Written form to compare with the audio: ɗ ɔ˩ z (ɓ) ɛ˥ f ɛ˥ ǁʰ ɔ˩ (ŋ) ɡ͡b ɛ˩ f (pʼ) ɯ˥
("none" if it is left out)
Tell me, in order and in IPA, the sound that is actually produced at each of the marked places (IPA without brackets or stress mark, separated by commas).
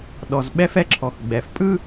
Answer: ɓ, x, pʼ